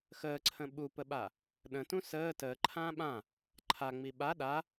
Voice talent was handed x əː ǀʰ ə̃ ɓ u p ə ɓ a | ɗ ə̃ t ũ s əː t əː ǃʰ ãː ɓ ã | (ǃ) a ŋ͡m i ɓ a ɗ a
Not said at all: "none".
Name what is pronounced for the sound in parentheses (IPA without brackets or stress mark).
ǃʰ